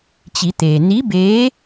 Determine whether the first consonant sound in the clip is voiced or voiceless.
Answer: voiceless